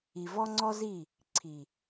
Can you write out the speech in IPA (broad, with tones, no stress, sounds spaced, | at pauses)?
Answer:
i˨ v ɔ˦ ŋ͡ǀ ɔ˦ z i˦˨ | ǀʰ i˨